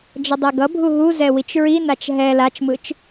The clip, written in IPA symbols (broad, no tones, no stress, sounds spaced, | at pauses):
d͡ʒ ʌ dˤ e ɡ ʌ bʱ u ɦ u z ɛ w i t͡ʃ ɹ i n a t͡ʃ ɦ ɛ l a t͡ʃ m ɯ t͡ʃ